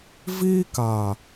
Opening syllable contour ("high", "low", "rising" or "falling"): high